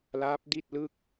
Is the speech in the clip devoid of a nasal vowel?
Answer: yes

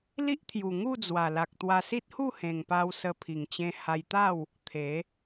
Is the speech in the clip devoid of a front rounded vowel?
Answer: yes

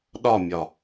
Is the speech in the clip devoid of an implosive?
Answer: no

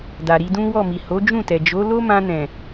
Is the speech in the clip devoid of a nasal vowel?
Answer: no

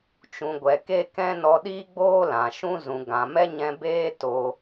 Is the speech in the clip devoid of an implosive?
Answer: no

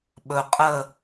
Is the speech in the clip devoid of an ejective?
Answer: no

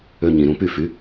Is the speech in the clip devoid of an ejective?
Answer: yes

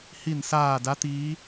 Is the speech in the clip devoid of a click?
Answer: yes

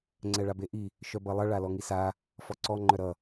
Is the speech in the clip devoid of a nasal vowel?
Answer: yes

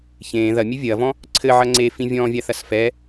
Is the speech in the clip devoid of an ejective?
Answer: yes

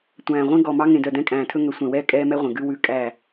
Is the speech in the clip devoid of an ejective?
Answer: no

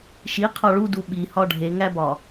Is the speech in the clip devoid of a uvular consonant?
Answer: no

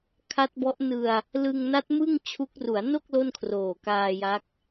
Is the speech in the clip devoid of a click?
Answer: yes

